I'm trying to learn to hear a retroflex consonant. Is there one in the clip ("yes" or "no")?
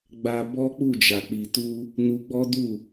no